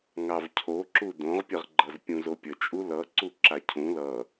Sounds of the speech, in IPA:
ŋ ɑ v cʰ o ǁ u d õ ʁ pʲ ə ʁ ɡ͡ǃ ʌ z pʲ ũ z o pʲ ə t͡ʃʼ u l ʌ ǀ u ǁ a cʰ ũ l ʌ

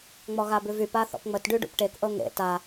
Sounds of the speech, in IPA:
ŋ͡m ɔ ɣ a b ʉ v y p a θ ɔ̰ p ŋ͡m ə t ɖ y ɖ ṵ p ʈ e k ʔ ɤ ŋ ḛ t a

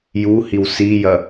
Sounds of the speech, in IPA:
j u h i w s i j ɐ

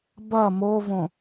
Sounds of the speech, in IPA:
b ɐ m o v õ

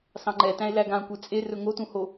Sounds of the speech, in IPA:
s ɑ̃ ŋ͡ǃ ɛ t æ̃ e̯ l æ ɡ ã kʷ e t͡sʼ e r ɵ ŋ o t ũ h o

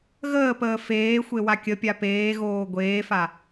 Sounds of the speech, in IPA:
ɣ əː p əː f eː xʷ e w a kʲ ə pʲ a p eː ɣ oː ɡʷ eː f a

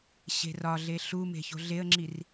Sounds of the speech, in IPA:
ɕ e̤ r ɒ ɮ e ɬ u m e̤ ç o̤ ɮ e ə̯ ŋ͡ǁ i r

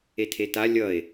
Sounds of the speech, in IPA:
e tʰ e t a lʲ ʌ e̯

